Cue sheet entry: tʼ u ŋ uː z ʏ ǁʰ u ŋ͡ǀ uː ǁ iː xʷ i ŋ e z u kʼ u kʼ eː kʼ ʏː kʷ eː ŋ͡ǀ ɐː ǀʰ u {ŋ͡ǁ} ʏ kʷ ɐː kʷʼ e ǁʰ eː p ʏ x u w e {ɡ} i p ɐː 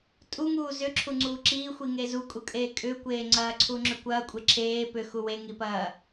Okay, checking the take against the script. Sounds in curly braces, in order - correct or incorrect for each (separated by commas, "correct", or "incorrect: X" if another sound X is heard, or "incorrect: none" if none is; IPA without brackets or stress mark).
correct, incorrect: ŋ